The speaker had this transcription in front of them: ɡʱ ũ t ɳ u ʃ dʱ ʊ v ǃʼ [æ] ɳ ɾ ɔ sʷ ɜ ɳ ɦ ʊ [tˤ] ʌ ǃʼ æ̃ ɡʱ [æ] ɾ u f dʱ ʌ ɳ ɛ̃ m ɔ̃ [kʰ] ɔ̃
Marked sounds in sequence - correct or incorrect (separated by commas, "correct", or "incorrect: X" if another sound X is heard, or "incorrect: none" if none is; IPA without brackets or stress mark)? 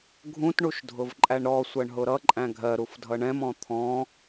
correct, incorrect: ɾ, incorrect: ɜ, incorrect: t̪ʰ